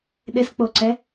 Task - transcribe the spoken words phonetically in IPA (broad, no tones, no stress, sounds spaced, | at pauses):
ɗ ɪ s k͡p o ǀ ɛ